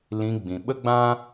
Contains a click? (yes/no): no